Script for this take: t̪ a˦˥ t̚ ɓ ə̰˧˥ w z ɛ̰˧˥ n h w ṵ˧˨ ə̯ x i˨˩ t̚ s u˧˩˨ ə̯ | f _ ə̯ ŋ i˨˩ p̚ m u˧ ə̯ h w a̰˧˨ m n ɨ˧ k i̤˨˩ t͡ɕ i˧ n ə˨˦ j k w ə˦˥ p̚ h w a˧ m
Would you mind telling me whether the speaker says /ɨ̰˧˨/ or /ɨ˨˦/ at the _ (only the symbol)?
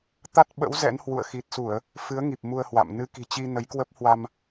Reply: ɨ˨˦